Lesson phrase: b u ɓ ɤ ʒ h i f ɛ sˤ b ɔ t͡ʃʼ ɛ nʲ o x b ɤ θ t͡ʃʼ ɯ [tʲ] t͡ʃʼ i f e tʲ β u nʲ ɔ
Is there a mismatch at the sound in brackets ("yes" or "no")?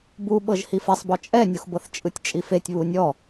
no